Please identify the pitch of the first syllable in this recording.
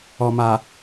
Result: low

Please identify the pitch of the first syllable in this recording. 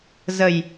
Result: low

